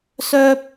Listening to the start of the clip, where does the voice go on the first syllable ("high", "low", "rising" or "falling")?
high